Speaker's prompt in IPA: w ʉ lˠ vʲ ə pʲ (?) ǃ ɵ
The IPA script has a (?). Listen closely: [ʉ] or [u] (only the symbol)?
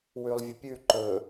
ʉ